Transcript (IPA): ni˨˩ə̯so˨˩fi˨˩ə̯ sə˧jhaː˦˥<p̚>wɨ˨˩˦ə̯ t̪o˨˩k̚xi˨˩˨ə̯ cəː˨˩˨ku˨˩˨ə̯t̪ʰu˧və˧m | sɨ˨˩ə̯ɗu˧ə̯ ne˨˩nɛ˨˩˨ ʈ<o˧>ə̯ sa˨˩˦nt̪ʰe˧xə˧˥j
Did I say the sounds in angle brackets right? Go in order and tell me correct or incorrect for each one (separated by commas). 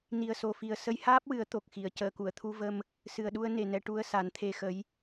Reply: correct, incorrect